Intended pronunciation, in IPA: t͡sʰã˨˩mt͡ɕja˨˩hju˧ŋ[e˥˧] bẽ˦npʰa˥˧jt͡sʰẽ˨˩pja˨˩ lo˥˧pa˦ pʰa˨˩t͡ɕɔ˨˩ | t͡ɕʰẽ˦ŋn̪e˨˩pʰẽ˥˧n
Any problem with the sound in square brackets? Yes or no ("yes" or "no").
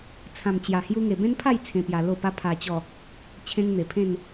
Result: yes